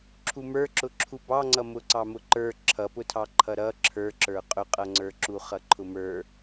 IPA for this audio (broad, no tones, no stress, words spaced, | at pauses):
ǁʰumə˞ǁʊ ǁʰubɑŋ͡ǀʌ mʊǀɑmʊǃə˞ ǁʰʌpʊtʰɑǃʰʌ ɾʌ ǁʰə˞ǁə˞ qʼʊqʼʌŋ͡ǀə˞ǁu χʌǃʰʊmə˞